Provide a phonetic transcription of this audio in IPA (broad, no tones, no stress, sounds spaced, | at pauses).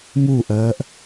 m u ʔ ɜː ʔ